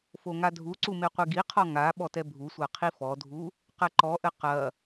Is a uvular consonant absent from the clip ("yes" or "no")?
no